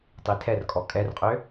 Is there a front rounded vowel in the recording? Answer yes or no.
yes